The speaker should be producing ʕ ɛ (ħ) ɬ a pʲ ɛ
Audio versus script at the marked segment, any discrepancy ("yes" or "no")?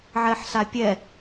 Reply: no